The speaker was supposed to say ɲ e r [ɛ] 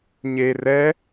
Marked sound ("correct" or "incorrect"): correct